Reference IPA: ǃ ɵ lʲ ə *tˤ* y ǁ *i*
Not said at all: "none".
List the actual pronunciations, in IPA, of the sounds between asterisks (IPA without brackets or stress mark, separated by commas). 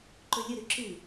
ɾ, ɨ